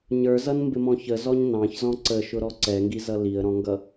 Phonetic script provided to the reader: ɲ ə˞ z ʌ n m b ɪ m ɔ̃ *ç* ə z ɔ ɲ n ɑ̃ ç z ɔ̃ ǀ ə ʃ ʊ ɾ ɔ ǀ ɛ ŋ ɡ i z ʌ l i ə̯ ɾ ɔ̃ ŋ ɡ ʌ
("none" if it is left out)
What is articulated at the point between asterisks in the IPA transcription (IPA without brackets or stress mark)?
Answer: ç